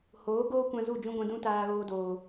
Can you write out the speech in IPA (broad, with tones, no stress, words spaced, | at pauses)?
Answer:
hoː˨˦ɡoː˦kʷã˧ zu˦˨d͡ʒũ˦ɡʷɛ̃˧ dũ˦taː˧ɣoː˧doː˨